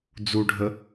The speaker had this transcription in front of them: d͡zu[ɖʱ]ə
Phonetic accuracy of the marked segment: correct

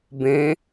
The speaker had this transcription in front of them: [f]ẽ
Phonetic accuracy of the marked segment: incorrect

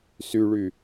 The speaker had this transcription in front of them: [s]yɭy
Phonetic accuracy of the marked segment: correct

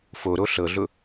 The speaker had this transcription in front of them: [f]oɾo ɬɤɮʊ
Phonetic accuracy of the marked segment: correct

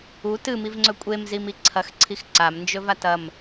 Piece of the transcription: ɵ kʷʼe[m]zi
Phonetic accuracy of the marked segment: correct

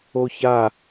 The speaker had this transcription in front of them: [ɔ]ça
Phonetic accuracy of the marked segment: incorrect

